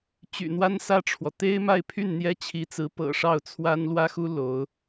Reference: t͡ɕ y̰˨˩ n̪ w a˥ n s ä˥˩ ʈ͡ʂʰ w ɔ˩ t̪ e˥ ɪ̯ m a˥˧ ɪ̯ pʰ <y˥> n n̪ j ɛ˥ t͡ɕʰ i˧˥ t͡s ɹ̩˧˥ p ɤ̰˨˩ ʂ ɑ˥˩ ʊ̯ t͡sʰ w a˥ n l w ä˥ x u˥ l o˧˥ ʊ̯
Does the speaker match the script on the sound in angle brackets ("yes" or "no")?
no